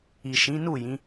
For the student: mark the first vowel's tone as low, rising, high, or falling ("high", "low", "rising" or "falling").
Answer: low